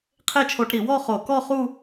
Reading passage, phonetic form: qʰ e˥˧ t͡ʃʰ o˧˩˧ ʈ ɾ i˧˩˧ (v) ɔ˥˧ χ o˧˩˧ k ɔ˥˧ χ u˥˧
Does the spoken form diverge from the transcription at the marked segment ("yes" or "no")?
yes